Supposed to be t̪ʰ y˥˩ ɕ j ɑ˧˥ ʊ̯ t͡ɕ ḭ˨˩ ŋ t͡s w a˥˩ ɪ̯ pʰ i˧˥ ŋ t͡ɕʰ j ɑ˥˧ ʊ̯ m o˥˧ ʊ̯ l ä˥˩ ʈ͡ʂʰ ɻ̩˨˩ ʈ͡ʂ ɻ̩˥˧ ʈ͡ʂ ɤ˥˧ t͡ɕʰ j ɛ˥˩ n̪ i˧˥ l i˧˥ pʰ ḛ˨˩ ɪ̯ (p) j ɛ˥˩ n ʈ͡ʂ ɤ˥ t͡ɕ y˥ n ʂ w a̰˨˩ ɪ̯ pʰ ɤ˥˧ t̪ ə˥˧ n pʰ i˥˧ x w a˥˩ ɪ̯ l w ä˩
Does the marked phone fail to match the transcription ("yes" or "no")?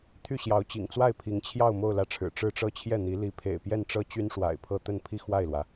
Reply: no